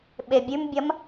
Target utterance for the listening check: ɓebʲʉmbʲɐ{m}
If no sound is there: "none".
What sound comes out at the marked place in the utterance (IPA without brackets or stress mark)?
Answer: m